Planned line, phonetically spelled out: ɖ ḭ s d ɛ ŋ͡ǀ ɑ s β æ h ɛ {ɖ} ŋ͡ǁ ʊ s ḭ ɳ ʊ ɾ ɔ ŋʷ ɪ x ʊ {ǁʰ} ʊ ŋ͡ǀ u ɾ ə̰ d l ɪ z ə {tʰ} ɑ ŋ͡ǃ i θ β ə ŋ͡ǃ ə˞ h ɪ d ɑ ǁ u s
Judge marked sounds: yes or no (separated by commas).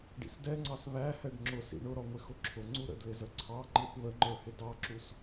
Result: yes, yes, no